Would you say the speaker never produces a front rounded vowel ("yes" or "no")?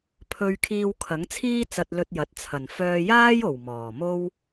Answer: no